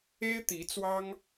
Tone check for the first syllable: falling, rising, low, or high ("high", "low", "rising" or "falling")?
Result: high